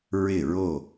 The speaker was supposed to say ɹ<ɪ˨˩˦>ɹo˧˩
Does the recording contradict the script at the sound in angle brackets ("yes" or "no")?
yes